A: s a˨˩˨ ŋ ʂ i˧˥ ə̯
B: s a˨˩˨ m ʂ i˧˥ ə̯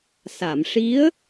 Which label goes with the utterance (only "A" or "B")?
B